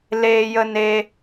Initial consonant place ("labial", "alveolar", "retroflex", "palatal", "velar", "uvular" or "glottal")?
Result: alveolar